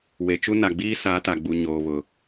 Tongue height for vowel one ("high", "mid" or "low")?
mid